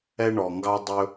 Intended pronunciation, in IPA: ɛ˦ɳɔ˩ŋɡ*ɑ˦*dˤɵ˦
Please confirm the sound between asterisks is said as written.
yes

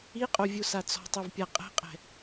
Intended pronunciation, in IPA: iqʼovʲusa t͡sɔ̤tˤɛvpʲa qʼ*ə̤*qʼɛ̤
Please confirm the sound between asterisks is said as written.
no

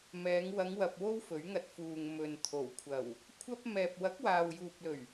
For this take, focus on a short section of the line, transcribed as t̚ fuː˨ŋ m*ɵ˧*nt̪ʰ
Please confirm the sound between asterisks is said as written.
no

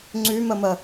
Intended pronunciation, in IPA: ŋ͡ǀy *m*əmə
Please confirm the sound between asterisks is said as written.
yes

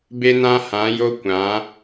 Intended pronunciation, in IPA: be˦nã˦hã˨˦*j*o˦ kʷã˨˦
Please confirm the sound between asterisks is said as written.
yes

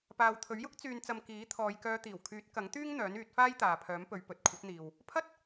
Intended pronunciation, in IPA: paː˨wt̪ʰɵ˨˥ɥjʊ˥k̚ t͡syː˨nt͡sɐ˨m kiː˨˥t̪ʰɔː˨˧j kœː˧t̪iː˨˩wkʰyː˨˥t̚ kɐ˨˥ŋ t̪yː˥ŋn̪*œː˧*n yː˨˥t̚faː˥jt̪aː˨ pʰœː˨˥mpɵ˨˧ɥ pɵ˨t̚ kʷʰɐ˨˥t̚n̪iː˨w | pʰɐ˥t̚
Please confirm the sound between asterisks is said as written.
no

